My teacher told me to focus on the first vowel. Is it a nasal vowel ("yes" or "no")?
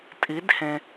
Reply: no